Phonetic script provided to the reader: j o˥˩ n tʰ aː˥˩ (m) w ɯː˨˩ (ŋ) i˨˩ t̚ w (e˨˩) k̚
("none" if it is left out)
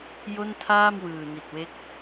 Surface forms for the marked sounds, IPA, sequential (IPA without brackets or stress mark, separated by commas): m, n, e˦˥